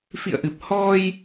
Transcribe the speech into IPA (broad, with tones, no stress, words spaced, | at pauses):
fḭ˧˨ə̯ʔɨ˨˩p̚ hɔ˧j